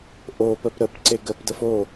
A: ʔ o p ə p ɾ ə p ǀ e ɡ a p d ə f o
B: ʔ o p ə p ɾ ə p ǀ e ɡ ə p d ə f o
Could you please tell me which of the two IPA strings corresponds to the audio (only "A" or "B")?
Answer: B